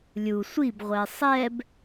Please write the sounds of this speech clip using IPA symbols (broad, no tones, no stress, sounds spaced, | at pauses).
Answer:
lʲ u sʷ i b ʁʷ ɛ sˤ ɛ b